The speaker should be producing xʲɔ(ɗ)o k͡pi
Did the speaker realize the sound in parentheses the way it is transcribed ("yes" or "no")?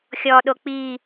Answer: yes